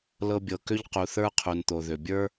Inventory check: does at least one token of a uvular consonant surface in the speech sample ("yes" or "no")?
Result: yes